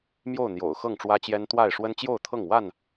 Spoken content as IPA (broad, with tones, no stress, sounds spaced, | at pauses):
m j o˥˨ ʊ̯ n̪ j o̰˨˩ ʊ̯ x ɤ˥˨ ŋ ʈ͡ʂ w ä˦ t͡ɕ j ɛ˦ n t̪ w a˥˨ ɪ̯ ʂ w ə˦ n t͡ɕ j o˥˨ ʊ̯ t̪ʰ ɤ˥˨ ŋ w a˥˨ n